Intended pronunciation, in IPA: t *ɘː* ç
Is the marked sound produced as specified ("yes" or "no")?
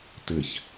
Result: no